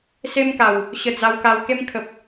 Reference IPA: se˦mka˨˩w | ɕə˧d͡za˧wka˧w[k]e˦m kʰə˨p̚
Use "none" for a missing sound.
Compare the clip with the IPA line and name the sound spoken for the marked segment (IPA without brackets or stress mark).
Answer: k